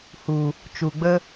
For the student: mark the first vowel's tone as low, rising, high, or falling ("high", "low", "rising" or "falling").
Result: low